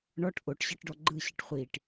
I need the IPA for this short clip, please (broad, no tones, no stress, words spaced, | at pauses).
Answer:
ɳɔʈ ʔoʈɕɯʈɖɔ ɡ͡ǃɯɕɨʈ χʷiʈ